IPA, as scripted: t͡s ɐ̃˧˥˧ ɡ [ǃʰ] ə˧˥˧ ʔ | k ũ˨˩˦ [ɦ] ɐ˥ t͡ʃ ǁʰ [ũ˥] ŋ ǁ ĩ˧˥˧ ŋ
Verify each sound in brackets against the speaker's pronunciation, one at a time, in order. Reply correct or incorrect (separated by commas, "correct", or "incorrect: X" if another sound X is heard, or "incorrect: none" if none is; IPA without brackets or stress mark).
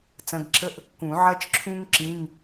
incorrect: ǁʰ, incorrect: ʕ, correct